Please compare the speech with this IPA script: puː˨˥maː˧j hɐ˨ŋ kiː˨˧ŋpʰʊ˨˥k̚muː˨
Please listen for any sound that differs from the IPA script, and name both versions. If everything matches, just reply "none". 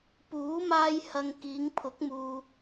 none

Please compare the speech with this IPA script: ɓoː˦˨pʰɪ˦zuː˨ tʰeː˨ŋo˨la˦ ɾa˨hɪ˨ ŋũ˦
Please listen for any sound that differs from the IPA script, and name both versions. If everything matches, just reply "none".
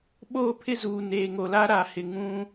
tʰ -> n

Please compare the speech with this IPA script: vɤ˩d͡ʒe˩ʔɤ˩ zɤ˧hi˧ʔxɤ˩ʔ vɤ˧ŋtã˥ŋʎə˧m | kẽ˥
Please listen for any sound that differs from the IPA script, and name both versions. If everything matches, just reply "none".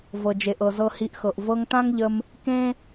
none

